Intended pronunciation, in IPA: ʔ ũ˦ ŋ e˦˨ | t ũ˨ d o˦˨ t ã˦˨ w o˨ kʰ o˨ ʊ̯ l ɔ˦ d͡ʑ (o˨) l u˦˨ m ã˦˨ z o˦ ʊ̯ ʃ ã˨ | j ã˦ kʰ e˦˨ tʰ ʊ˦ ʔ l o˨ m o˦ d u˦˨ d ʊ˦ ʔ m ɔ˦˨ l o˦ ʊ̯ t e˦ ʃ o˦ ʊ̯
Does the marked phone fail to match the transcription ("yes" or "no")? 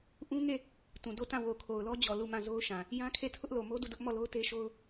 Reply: yes